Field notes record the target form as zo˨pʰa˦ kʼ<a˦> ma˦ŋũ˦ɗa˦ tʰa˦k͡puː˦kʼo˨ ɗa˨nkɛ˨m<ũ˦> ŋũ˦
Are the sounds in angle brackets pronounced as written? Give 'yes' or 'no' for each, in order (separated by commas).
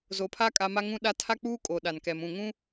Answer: yes, no